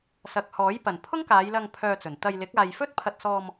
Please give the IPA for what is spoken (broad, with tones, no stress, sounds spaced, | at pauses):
s ɐ˨ k̚ h ɔː˨˥ j p ɐ˨˩ n pʰ ʊ˥ ŋ k aː˨˧ j l ɐ˧ ŋ pʰ œː˧ t͡s ɵ˨˩ n t̪ ɐ˧ j l ɪ˨˥ k̚ aː˨ j f ɵ˥ t̚ pʰ ɐ˧ t̚ s ɔː˧ m